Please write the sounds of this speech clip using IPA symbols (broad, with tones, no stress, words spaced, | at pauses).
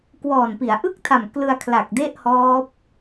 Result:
kwɔː˨˩npi˩˦a̯ ʔɯ˥˩k̚tʰa˨˩m klɯ˧a̯kʰla˨˩k̚de˥˩ʔhɔː˦˥p̚